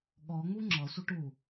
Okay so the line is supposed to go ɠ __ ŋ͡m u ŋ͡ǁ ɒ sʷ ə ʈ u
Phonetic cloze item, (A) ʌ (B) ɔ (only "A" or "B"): B